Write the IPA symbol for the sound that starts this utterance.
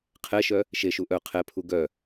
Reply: qʰ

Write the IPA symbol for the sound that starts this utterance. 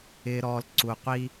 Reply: ɪː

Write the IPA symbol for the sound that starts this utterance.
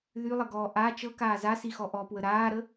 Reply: ð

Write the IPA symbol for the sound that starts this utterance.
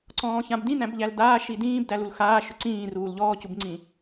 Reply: ǀ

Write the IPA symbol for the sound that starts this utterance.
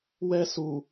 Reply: w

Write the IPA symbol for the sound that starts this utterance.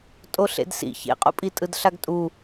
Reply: tʼ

